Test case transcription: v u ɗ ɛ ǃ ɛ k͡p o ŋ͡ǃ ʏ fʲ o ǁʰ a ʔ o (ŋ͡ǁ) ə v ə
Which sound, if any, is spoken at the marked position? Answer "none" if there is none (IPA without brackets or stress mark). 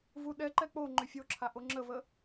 ŋ͡ǁ